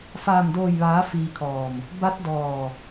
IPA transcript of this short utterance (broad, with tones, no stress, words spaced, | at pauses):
faː˧˩mdoː˧˩jʋaː˩˧ fiː˧kʰɔː˧˩m | ba˧˥t̚dɔː˧˩